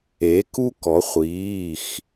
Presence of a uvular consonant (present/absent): present